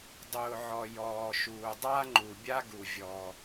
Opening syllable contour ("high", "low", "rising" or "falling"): low